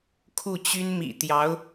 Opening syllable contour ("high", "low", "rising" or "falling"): falling